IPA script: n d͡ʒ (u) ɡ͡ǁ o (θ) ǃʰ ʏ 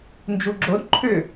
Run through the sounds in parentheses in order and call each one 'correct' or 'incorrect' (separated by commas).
correct, incorrect